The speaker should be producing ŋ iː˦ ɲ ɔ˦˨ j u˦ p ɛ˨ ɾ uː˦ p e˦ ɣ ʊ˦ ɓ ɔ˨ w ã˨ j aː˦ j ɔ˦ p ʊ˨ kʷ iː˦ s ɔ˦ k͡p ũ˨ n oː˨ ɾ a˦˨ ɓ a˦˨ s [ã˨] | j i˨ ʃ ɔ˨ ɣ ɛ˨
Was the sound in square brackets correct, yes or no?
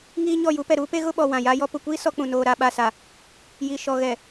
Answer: no